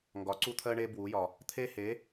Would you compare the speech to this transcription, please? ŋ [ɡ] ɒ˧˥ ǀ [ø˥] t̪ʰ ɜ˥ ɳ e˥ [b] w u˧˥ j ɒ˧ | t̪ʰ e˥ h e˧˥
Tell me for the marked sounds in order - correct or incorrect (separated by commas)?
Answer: correct, incorrect, correct